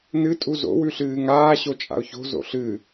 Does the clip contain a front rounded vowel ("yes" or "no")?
no